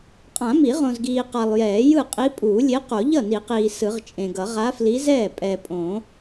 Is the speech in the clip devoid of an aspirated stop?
yes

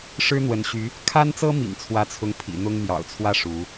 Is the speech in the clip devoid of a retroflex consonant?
no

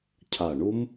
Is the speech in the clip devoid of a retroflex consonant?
no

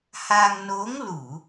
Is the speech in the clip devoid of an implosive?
yes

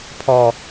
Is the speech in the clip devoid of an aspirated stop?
no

